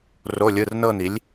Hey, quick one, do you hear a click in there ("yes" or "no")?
no